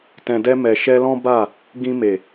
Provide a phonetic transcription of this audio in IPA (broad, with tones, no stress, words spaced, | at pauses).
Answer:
tɛ̃˨dɛ˧mɛ˨ ʃɛ˧lɔ̃˦ba˦˨ | ɡĩ˧me˨